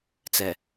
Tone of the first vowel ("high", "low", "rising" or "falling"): low